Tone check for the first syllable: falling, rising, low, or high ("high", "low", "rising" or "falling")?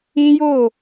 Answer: high